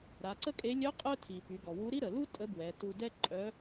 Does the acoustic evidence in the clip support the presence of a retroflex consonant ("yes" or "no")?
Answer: no